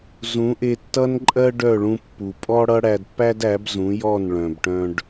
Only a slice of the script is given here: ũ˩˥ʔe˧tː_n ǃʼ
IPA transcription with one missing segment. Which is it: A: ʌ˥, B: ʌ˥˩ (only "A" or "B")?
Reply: A